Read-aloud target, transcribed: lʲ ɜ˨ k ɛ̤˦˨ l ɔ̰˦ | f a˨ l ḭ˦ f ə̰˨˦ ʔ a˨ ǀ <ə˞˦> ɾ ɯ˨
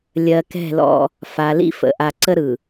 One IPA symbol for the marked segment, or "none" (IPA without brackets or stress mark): ə˦